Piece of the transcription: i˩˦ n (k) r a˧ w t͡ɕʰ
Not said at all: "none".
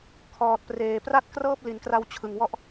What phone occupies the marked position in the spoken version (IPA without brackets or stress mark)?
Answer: k